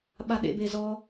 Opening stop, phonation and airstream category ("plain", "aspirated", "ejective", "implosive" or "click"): implosive